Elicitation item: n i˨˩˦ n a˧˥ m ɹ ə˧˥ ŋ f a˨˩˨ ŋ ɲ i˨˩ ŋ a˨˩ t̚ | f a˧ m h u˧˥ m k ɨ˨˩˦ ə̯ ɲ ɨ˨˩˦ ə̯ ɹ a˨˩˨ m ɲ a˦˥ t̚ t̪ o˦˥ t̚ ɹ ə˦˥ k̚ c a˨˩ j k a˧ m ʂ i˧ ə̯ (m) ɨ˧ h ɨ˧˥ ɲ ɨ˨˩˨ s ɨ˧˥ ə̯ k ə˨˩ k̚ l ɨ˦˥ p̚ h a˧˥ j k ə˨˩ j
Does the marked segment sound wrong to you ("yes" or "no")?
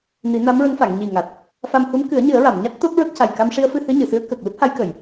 yes